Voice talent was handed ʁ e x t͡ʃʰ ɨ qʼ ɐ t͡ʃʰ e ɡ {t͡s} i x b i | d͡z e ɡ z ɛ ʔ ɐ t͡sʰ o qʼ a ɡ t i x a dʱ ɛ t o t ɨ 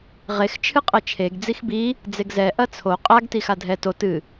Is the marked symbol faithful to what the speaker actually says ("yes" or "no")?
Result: no